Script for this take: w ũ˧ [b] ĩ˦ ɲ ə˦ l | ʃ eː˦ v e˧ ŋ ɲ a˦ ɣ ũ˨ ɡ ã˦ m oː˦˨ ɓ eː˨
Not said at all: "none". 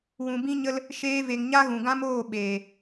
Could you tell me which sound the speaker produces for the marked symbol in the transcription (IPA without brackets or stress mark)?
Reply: b